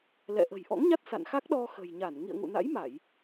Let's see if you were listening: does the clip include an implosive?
yes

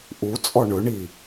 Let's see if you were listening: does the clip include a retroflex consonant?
yes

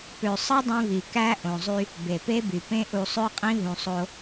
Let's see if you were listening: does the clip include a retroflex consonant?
no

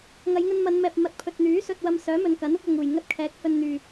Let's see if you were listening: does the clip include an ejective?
no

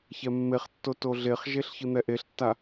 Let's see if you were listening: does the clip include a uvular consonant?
yes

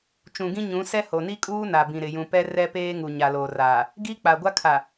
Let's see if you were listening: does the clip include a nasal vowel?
yes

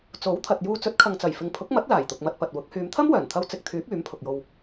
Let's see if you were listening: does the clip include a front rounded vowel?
yes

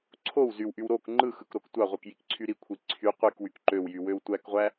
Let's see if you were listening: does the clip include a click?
yes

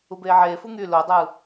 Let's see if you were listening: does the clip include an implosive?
no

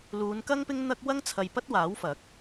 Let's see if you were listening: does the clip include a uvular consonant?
no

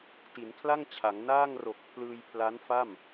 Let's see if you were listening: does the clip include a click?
no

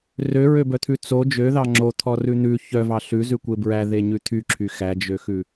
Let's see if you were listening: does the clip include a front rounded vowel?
yes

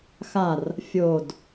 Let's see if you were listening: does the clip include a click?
no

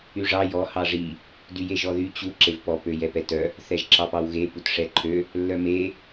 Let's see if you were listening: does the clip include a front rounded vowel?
yes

